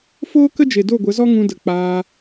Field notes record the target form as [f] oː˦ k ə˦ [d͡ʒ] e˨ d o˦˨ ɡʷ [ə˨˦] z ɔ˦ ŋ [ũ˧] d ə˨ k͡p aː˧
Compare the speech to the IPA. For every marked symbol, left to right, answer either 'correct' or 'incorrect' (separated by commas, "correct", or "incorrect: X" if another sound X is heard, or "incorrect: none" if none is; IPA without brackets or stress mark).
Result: correct, correct, correct, correct